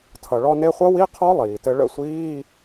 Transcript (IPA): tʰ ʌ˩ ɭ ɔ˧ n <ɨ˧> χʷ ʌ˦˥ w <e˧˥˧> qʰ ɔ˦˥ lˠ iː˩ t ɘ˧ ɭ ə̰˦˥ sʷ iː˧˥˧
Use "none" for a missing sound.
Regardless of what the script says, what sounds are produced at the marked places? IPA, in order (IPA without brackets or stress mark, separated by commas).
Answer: e˧, i˧˥˧